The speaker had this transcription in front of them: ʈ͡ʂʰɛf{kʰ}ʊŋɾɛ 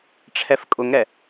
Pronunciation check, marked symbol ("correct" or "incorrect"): incorrect